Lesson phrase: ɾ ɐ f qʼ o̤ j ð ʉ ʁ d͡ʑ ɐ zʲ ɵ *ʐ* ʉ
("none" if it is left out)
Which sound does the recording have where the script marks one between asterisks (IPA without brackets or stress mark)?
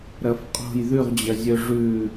ʐ